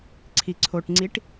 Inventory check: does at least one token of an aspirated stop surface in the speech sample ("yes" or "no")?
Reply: yes